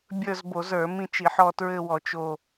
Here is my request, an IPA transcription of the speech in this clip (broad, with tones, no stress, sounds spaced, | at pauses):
bʲ ə˞˦˨ z b o˧˩˧ z ə˞˧˩˧ m ĩ˦˨ t͡ʃ i˧˩˧ ħ ɔ˦˨ t ɹ ɘ˦˨ w ɔ˧˩˧ t͡ʃ o˦˨